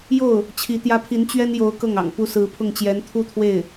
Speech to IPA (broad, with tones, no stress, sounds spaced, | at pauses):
j o˥˩ ʊ̯ | t͡ɕʰ i˧˥ t̪ j ä˥ pʰ i˧˥ n t͡ɕ ɥ ɛ˥ n j o˧˥ ʊ̯ k ɤ˥˩ ŋ ɑ̰˨˩ ŋ p u˥ s ɹ̩˧˥ pʰ ʊ˥˩ ŋ t͡ɕ j ɛ˧˥ n t̪ʰ u˥ t̪ʰ w e˥˩ ɪ̯